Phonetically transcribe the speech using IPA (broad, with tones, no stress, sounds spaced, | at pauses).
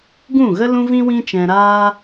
ɡ ũ˦˨ ɣ ə˦ l ũ˦ v ĩ˦ w ĩ˦ t͡ʃ ɛ̃˧ ɾ aː˦